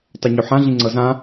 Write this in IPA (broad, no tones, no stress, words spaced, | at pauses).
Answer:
tˤɛɲoħã ɮĩŋ͡ǀɤzã